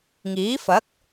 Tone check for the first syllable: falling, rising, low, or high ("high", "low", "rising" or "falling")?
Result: rising